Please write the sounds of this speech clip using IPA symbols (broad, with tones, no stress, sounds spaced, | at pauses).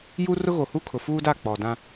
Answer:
j u˦ r ʊ˦ ɣ o˨ h u˦ kʰ ʊ˨ f uː˦ d a˦˨ k͡p ɔ˨ d ã˦